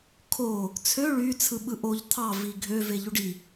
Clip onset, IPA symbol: kʰ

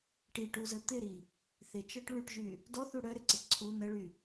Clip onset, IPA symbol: ʈ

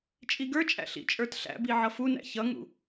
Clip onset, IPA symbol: t͡ʃʼ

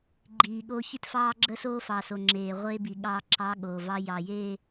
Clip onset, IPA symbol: ɡ͡ǃ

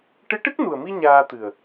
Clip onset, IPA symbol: ʈ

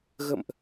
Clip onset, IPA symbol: ɣ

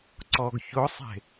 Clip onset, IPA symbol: ǀ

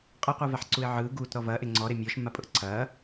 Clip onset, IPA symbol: qʼ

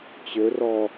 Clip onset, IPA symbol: t͡ɕ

